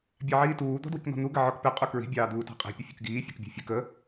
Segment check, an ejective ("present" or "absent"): present